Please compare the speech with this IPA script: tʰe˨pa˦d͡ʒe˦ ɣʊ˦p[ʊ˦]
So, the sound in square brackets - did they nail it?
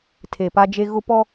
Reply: no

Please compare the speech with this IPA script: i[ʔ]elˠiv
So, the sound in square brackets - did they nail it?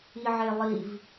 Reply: no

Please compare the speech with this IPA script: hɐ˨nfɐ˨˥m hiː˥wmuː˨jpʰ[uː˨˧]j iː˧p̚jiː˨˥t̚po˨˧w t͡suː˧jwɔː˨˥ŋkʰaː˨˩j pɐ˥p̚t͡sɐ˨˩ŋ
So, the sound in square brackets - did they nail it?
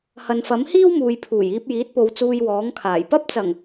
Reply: no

